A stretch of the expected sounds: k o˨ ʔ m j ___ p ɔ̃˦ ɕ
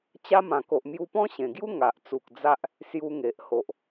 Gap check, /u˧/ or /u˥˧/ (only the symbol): u˧